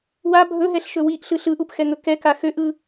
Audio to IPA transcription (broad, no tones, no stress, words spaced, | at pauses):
wa bʱɵɦɛɬʃɵ wiʔɬɯ ɬɯʔupxɛŋɵ kɛka xøʔɯ